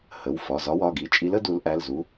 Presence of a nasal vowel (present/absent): absent